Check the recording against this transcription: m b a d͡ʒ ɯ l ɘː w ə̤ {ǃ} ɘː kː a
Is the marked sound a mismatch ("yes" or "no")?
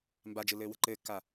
no